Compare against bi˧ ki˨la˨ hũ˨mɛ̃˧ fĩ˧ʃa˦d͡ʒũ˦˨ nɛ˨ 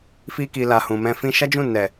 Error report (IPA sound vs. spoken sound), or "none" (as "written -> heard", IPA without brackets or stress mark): b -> f